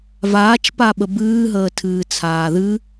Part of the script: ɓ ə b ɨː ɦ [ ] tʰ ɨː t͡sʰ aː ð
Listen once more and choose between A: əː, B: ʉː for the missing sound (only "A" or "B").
A